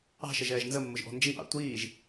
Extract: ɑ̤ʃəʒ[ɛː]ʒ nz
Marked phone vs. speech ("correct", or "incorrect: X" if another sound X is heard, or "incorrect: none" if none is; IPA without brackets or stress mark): correct